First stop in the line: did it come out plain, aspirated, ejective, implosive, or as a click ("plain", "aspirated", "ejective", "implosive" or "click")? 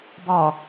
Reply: plain